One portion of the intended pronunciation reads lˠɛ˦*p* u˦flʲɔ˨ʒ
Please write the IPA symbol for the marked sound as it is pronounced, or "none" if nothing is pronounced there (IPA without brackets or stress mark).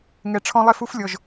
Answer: f